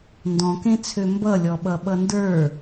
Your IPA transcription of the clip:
n d ɔ̃ k ẽ t͡sʰ ø m b ʌ lʲ ɔ ɓ ʌ ɓ ʌ n d ə˞

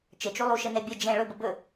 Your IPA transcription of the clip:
t͡ʃ ə t͡ʃ u lˠ u ʃ ə n ɛ bʲ ə d͡ʒ ɛ̃ ɭ ɵ b ə b ɵ

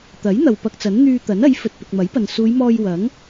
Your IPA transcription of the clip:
t̪ ɐ˨˥ j n̪ ɐ˨ w p ɐ˧ k̚ t͡s ɐ˨˥ n n̪ yː˧ t̪ ɐ˨˥ n ɐ˨˥ j f ɵ˨ t̚ p ɪ˨ k̚ m ɐ˨˥ j p ɐ˨ n s uː˨˧ j m ɔː˧ j w ɐ˨˥ ŋ

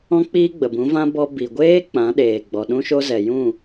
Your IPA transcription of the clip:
ɔ̃˦ k͡p iː˦ ɡ͡b ə˨ b ũ˨˦ v ã˦ b ɔ˦ b i˨ ɡʷ eː˦ k͡p ã˨˦ ɗ eː˨ ɡ͡b ɔ˨ ɗ ũ˦ ʃ o˦ z ɛ˨ j ũ˦˨

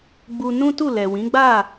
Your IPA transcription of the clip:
ɡ͡b u˧ n ũ˦ t u˦˨ l ɛ˨ w ĩ˨˦ ɡ͡b a˦˨

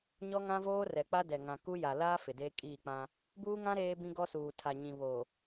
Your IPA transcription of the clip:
ɲ ɔ˦ ŋ ã˦ v oː˦ r ɛ˨ k͡p a˦ d ɛ˨ ŋ ã˨ k u˦ j a˨ l aː˦ f ɪ˨ d eː˦ kʼ iː˦˨ k͡p ã˦ | b uː˦ ŋ ã˦ ɾ eː˦ b ĩ˦ ɡ ɔ˦ s uː˨ tʰ a˨ ɲ ĩ˨ β o˨

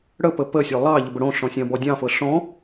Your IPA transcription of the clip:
ɽ ə p ə p ə sʲ o lˠ ɑ ʎ ə b ə ɽ õ ɬ ɔ̃ sʲ ɑ̃ b ɔ dʲ ɑ̃ f ɤ ɬ ɔ̃

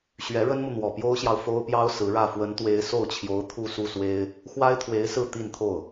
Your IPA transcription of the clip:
ɕ ɥ ɛ˧˥ ɻ ə˥ n m u˨ n̪ w ɔ˨˩ p j o˥ ʊ̯ ɕ j ɑ˨ ʊ̯ f o˥ ʊ̯ p j ɑ˥ ʊ̯ s ɹ̩˧˥ ɻ ä˥˩ f w ə˧˥ n t̪ w e˧˥ ɪ̯ s o˥˩ ʊ̯ t͡ɕʰ j o˧˥ ʊ̯ t̪ʰ u˥˧ s u˥˩ s w e˥ ɪ̯ | x w a˥ ɪ̯ t̪ʰ w e˧˥ ɪ̯ s ɹ̩˥˧ t̪ i˥˧ n t̪ʰ o˥˩ ʊ̯

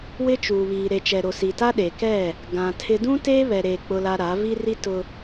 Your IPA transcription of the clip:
w ɪ˦ t͡ʃ uː˨ β iː˨ ɾ e˨ t͡ʃ ɛ˨ ɾ o˨ s i˨ t a˦ ɗ e˨ k ɛ˦˨ | ɡ ã˨ tʰ ɪ˦ d ũ˦ t eː˦ β ɛ˨ ɾ eː˨ k͡p ʊ˦ l a˦ ɾ a˨˦ v i˦ r i˦ t ʊ˦

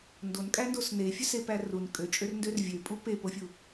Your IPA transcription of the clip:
n d o n kʼ æ n d o s n e fʲ ø s e p æ r u n kʼ ø t͡ʃʼ ø r n d ø r vʲ ø pʼ u p e p o fʲ u

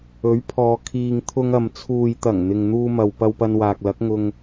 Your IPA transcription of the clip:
ɵ˨˥ ɥ pʰ ɔː˨ kʰ iː˨ ŋ t̪ʰ ʊ˧ ŋ ɐ˨ m t͡sʰ uː˨ j t̪ ɐ˨˩ ŋ n̪ ɪ˨ ŋ n̪ uː˧ m ɐ˨ w p ɐ˧ w p ɐ˧ n w aː˨ k̚ l ɐ˨˥ k̚ ŋ ʊ˧ ŋ

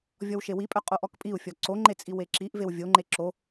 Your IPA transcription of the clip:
vʲ ɔ w ʃ e w i pʼ œ qʼ o ʔ ɔ k pʼ i u̯ fʲ ɔ ǀ o ŋ͡ǃ e t͡sʼ i w e ǁ i ʔ v e w vʲ o ŋ͡ǃ e ǁ o

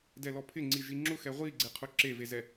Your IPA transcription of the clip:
d ɛ l ɔ pʰ ɪ ŋ͡ǀ i ʒ i ŋ͡ǁ ʊ x ɛ ʁʷ i ɡ͡ǀ e qʰ ʊ ǁ e v e z ɛ

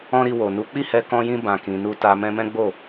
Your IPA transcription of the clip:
ɔ̃˦ ɾ i˧ w o˨ n u˨˦ k͡p i˦˨ h ɛ˧ k ɔ̃˧ j ĩ˧ b ã˨ k ĩ˨ n u˧ t a˧ m ɛ̃˦ m ɛ̃˦ ɡ͡b o˦˨

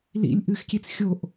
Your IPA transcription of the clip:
l ḭ lʲ ʔ ɨ x kʲ e t͡s xʲ o ʔ

